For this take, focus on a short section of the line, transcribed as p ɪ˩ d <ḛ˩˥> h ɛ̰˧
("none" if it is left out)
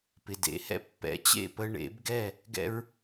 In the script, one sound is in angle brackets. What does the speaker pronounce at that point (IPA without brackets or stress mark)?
ḛ˩˥